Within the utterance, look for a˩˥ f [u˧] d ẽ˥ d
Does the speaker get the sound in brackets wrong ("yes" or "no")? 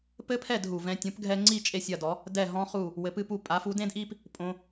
yes